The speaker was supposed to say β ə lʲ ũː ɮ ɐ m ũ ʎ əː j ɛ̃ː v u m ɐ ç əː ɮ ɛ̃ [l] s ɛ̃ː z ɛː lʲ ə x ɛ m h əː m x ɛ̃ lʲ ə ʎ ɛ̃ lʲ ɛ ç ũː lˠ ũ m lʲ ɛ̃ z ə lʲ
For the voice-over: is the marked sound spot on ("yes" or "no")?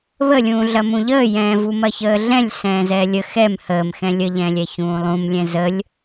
no